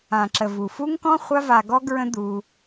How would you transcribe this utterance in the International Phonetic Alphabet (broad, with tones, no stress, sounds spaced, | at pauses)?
ã˨ ǁ ə˨ v u˨ f u˦ ŋ k ɔ̃˦ χʷ a˦ v a˧ ɡ ɔ˦ ɡ ɹ ə̃˦ d̪ uː˧